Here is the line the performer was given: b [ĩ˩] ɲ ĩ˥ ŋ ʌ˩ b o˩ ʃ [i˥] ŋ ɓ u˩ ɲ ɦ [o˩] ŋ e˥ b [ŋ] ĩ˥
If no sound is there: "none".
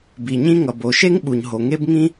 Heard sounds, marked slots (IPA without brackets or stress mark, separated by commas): i˩, e˥, o˩, ŋ